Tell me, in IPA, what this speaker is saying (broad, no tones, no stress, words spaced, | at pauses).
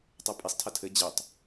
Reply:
tˤɛpʼisˤtʰɐ tʰɘ d͡ʑɘtˤ